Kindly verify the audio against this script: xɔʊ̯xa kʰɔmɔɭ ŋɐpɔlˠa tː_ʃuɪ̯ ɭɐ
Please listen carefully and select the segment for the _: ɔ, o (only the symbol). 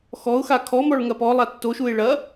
o